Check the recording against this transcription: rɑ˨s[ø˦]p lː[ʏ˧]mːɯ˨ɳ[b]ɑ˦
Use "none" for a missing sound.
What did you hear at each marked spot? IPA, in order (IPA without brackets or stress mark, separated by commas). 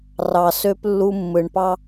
ø˦, u˧, p